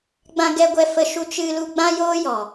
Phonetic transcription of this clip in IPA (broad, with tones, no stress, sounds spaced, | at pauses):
ɡ͡b ã˧ ɡ ɛ˧ ɡʷ ɛ˧ f ə˧ ʃ u˧ t͡ʃ ɨ˧ l u˧ ɡ͡b ã˦ j oː˦ j ɔ˨